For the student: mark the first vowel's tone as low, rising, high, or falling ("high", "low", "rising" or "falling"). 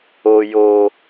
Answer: high